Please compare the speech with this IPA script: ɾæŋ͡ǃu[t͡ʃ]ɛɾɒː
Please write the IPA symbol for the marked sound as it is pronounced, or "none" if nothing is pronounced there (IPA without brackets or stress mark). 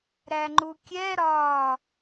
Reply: kʲ